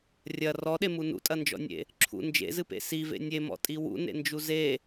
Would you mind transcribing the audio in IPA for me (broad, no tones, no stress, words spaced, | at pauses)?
rʲɐ rɔɗemu nṵtʼɐnd͡ʒɔ̰nʲḛ | ǁʰṵ nd͡ʒḛzɨpḛ sivḛ nʲemɔ̰tʼi wṵnḛnd͡ʒu ze